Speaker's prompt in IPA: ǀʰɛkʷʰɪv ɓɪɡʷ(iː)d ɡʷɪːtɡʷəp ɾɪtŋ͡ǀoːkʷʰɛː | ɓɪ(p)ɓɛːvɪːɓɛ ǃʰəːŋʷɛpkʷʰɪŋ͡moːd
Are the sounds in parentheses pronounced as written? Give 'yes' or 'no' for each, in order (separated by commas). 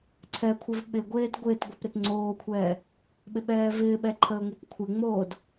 no, no